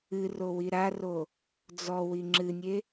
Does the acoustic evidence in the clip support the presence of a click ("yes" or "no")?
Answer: yes